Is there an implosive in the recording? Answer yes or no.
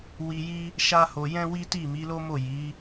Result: no